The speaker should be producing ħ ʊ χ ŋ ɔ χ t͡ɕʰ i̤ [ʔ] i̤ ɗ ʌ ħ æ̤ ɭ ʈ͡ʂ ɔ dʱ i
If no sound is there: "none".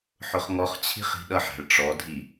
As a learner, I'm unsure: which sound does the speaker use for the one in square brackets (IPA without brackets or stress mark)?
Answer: χ